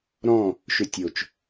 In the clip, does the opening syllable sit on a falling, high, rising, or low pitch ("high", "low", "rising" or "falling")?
falling